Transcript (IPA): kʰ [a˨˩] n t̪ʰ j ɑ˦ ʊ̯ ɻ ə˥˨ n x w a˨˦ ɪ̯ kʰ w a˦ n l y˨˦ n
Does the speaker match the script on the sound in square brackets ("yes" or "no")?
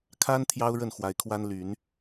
no